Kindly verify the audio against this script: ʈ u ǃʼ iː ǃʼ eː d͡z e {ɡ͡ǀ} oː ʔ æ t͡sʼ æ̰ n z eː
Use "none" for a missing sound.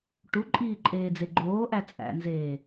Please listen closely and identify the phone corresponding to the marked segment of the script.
ɡ͡ǃ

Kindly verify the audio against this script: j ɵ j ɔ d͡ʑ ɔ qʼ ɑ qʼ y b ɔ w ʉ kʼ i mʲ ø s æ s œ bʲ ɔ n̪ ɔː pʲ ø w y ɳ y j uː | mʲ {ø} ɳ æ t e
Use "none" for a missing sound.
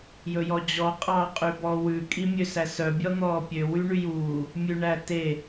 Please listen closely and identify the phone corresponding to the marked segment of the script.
ʉ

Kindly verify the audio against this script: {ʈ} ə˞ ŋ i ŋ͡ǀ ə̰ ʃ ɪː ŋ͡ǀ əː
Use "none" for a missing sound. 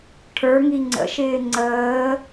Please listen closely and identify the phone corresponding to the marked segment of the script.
ʈʰ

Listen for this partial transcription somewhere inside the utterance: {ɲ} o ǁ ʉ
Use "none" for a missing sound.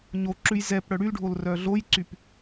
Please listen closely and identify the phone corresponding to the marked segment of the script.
ɲ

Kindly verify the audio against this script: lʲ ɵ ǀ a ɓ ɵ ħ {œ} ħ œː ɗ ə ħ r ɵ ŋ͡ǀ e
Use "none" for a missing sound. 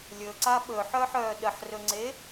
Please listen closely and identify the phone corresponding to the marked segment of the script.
œ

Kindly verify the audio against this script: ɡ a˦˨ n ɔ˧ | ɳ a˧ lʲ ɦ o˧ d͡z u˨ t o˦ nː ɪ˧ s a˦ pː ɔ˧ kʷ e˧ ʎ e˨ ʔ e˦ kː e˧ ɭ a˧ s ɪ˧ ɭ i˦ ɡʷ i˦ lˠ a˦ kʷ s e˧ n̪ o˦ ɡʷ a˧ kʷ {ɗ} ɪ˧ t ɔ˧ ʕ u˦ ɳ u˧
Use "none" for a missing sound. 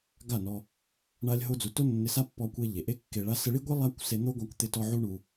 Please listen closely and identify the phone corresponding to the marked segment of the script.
t̪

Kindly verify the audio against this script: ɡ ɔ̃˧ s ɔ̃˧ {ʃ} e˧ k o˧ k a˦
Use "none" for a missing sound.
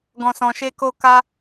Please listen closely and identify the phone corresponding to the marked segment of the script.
ʃ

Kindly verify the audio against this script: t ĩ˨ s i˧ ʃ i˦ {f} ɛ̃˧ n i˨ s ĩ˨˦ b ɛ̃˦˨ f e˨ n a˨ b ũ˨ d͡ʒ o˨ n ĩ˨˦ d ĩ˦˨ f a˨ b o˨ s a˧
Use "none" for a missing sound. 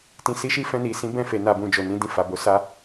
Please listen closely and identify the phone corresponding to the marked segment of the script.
f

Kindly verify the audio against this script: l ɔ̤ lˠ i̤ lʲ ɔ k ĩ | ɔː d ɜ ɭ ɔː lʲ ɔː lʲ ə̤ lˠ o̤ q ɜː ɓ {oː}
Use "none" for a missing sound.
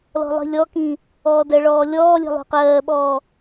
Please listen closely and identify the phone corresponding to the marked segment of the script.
ɔː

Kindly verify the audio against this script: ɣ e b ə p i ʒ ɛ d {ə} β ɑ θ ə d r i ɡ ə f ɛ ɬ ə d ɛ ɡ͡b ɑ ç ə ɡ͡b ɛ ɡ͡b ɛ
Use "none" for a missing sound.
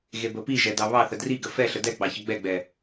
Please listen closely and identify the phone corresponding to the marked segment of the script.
ɑ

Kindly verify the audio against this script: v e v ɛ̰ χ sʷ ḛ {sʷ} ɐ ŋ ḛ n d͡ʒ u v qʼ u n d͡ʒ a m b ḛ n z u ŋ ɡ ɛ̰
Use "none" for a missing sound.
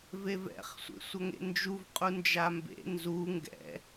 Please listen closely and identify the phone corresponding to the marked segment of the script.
sʷ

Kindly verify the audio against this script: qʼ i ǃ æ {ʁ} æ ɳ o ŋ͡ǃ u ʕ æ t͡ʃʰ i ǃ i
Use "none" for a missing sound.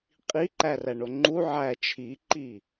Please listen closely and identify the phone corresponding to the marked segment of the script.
r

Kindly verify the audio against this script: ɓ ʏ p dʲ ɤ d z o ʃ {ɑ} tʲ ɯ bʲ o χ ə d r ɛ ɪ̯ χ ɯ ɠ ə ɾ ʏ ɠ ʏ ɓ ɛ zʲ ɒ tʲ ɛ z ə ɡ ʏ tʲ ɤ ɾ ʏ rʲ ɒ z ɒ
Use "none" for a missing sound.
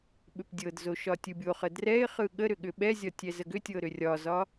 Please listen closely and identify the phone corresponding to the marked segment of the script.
ɒ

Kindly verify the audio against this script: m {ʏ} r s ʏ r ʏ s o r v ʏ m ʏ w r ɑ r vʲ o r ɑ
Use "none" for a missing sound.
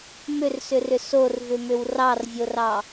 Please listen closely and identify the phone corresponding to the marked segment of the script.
ʏ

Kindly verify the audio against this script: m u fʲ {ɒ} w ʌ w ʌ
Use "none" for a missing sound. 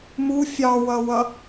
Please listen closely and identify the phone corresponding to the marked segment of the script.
ɑ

